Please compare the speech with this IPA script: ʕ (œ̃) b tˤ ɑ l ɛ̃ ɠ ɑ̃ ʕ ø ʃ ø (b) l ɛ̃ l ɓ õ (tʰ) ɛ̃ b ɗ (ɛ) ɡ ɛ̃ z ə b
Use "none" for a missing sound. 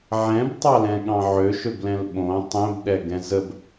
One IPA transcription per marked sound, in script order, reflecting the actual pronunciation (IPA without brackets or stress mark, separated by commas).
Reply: ɛ̃, b, tˤ, ɛ